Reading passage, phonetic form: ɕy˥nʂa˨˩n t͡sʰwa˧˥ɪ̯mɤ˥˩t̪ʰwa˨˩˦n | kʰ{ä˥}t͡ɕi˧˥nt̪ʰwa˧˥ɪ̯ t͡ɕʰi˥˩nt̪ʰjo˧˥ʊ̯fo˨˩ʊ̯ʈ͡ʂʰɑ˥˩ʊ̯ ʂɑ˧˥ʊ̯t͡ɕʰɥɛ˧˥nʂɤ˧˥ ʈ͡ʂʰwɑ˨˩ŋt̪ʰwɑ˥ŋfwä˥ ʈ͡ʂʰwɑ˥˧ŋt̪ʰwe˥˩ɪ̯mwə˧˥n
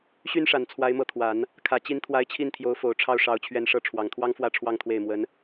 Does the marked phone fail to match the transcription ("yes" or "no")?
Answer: yes